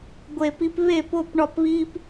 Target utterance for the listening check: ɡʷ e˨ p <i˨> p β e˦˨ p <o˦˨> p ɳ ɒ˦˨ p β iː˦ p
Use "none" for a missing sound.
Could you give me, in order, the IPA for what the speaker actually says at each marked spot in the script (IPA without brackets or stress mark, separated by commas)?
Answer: i˧, o˦˨